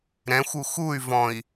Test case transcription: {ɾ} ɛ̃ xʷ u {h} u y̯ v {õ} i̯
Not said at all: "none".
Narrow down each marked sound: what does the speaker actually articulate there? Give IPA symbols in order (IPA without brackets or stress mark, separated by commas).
ɾ, x, ɔ̃